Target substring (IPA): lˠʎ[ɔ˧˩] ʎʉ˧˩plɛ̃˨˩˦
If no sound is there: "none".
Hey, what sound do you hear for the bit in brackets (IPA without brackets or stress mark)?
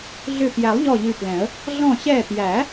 ɔ˧˩